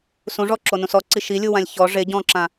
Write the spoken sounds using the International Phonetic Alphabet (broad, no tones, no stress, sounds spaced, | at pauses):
s ũ ʐ ɔ ǁ o n ũ s ɔ ǀ i ʃ i lʲ u w ã lʲ ç ɔ ʐ e ɟ ɔ̃ ǁ ã